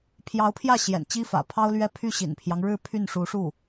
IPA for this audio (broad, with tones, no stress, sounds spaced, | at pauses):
pʰ j ɑ˧˥ ʊ̯ pʰ j ä˥˩ ɕ j ɛ̰˨˩ n t͡ɕ i˥ f ä̰˨˩ pʰ ɑ˥ ʊ̯ l ɥ ɛ˥˧ pʰ y˥˩ ɕ ḭ˨˩ n pʰ j ɑ˦ ŋ ɻ ɻ̩˥˧ pʰ y˥˩ n ʂ u˧˥ ʂ u˥˩